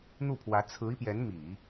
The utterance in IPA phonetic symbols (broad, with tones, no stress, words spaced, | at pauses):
n̪u˥˩pʰwä˧˥ t͡sʰɹ̩˧˥i˧pjɛ˧˥n mi˨˩˦